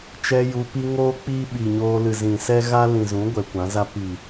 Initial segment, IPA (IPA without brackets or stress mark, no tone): t͡ʃ